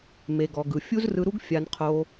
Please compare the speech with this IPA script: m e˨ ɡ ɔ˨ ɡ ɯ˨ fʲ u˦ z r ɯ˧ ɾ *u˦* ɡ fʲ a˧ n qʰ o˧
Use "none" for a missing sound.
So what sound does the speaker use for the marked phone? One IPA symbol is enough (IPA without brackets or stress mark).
u˦